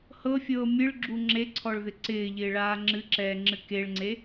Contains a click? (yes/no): yes